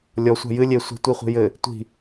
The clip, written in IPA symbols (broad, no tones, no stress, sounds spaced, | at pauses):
lʲ ɔ sʷ a̤ j ɨ lʲ e sʷ e̤ tʷ i χʷ i̤ j ɘ | tʷ i̤